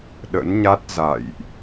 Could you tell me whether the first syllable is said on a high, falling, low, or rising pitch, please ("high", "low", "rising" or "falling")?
rising